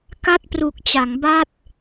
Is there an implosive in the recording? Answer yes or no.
no